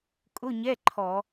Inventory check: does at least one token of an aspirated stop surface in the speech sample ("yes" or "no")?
yes